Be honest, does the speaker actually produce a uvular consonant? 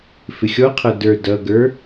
yes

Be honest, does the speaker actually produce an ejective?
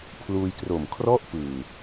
no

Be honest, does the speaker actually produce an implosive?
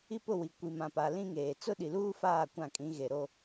yes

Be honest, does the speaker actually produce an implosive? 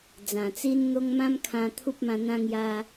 no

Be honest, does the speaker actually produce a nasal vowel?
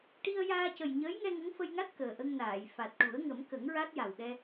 no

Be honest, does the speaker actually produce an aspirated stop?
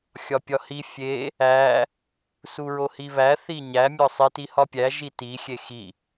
no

